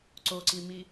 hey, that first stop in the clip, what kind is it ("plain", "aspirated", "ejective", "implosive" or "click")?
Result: click